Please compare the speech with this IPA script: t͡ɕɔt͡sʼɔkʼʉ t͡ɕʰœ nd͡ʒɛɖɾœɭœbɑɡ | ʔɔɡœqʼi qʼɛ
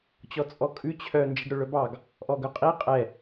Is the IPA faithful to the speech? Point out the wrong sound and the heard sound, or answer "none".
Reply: none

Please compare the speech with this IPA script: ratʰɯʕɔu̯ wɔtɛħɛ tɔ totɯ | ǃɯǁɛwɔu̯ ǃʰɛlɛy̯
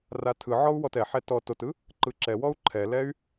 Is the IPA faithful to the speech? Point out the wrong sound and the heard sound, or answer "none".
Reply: none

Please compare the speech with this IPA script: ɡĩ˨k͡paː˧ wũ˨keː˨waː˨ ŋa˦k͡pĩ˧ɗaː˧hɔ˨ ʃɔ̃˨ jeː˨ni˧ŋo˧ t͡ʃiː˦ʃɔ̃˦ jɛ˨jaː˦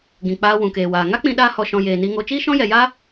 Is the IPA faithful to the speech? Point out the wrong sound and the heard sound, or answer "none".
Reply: none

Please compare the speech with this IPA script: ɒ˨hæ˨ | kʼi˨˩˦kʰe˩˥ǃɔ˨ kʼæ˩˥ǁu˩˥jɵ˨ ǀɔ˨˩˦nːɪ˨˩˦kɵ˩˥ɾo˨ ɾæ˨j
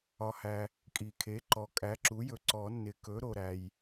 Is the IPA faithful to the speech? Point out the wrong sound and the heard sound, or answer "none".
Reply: none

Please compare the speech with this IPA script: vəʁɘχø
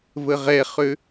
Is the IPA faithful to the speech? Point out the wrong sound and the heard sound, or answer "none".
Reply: ɘ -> ɛ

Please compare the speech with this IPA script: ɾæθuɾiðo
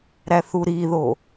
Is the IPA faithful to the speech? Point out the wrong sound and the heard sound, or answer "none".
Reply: none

